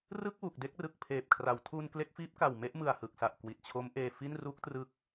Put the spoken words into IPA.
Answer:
rɯ˥˩k̚wu˨˩k̚de˥˩k̚rɯ˨˩k̚ pʰeː˨˩p̚kʰra˩˦w tʰu˧n kle˦˥k̚fiː˦˥p̚ka˨˩w me˥˩ʔmɯ˨˩a̯hɯ˨˩k̚sa˨˩ʔ kwi˨˩t̚t͡ɕʰo˦˥mʔeː˧ fi˥˩n ru˦˥k̚trɯ˦˥k̚

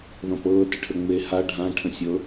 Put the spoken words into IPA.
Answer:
ðɔ̃pɤ təʈʰəŋ͡me ha ɖʱã ʈʰə̃sʲɤ

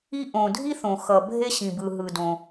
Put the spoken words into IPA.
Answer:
i˥ ʔõ˩dʱi˥ θõ˩xʌ˩bʱe˥ ɕĩ˩bɯ˩ɦɯ˩dõ˩

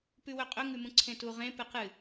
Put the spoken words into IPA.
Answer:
pʉwɵqʼɵ ŋʉmũǀʰẽtu ʁẽ pɨqɨ

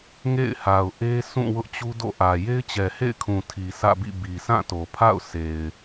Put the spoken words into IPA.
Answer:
ŋḛ˦˨ɪ̯ha˨ʊ̯ ʔe˦sũ˦˨ wʊ˦ʔt͡ɕu˦ do̰˦˨ʔä˨ je˦ɪ̯t͡ɕɛ˨hḛ˦˨ɪ̯kʰũ˨ tʰi˨sʰä̰˦˨bḭ˦˨ bi˨sʰã˦˨to˨pʰa̰˦˨ʊ̯ sʰe˨ɪ̯

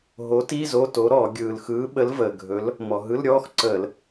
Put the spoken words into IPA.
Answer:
ɦo˨˥ti˧˥˧ zo˧˥˧to˨˥ɾɔː˧˩˧ ɡʲɯː˩lxɯː˨˥ɓə˨˥l vəː˩ ɡʱɵ˨˥l | mɔ˩ɦɯ˧˥˧lɾʲɔː˧˥˧xǀəː˧˩˧l

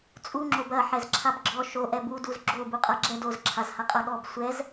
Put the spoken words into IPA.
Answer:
t͡sʼuŋ͡ǁob ɐ ħɛzǁʰabɡ͡ǁɔ ʃo ʔɛbuduz ɡ͡ǁo buqʼaɡ͡ǁɛ doz ǁʰazhaqʼaɠɔb sʷɛz

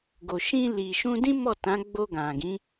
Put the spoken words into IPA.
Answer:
ɡo˨ʃĩ˧li˨ ʃũ˧dĩ˦ mɔ˦˨tã˨˦ɡ͡bo˧ ɡã˨ɡĩ˨˦

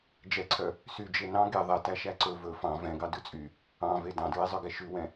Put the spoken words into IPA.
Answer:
d͡ʒɛǀʰœ | syd͡ʒe nɑ̃ ɡe ðˤɛtæ ʃæǀɵ vɵ fɑ̃ vɛ̃ɡɑ dʉt͡sʼy | ɑ̃ve dɑ̃dɹezˤœɡɛ ʃʉwɛ̃

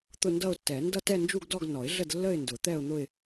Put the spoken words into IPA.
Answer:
t̪ʊ˥˧ndʌ˥˧ʊ̯tːɛ˨˩˦ ndʌ˥˧tɛ˥˧nd͡ʒu˥˧ɡdɔ˥˧ɡ nɔ˨˩˦ɪ̯ɮə˥˧dlːə˥˧ɪ̯ndʊ˨˩˦ t̪ɛ˥˧ʊ̯n̪ʊ˥˧ɪ̯

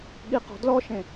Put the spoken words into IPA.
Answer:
ɠiqɔ̤dlɔʃẽ

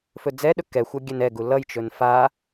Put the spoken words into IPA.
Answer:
fɵd͡zɛɗɵ kɛxʷʌ ɡʲɛnɛɡu lʌjt͡ʃɵn fa

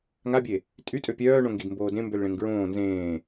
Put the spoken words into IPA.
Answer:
ŋabʲe | tʼytʼø pʲœːɳõ ŋɡidmboːdẽ mbølɭẽŋɡɹõː nzẽː

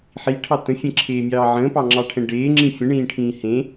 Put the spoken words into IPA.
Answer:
ħiʈʰɑ tə̃fʲẽǁʰeːmʲɑː ʕə̃ːpɑŋ͡ǁɑʈʰɛ̃ ɖeːŋ͡ǁĩ fʲə̃ɳĩːʈʰĩː hẽ

